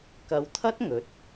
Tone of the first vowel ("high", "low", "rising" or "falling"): low